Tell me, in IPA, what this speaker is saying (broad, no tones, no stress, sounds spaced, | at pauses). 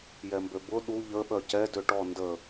j ɛ m b ø b ʊ ɗ u ʎ ə ɓ œ c ɛ d ø ʈ ɔ n d ə